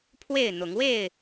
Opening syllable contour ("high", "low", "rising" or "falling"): falling